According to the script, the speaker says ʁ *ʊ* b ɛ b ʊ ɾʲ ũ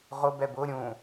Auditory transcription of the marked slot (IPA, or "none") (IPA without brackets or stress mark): ʊ